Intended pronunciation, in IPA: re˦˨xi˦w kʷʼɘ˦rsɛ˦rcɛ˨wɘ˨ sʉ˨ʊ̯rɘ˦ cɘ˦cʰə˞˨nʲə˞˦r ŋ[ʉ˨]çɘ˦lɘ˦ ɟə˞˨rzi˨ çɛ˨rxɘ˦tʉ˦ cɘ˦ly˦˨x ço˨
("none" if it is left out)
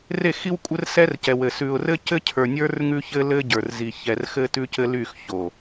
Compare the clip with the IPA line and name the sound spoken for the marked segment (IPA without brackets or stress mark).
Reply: ʉ˦